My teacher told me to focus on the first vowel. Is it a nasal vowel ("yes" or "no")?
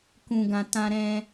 yes